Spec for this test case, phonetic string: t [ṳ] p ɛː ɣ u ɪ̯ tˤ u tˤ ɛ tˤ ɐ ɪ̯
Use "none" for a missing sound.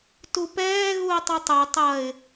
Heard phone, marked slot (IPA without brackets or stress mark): u